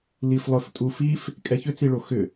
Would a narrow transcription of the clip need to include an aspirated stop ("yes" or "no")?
no